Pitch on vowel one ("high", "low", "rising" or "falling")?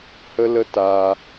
high